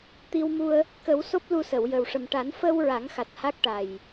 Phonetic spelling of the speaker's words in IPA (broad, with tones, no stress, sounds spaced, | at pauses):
t̪ i˧ w m u˧ ə̯ | k ə˨˩˦ w s o˦˥ p̚ l u˧ s ə˨˩˨ w j ə˨˩ w ʂ ə˨˩ m ʈ a˨˩˦ n f ə˧ w ɹ a˨˩˦ ŋ x a˨˩ t̚ h a˦˥ k̚ ʈ a˨˩ j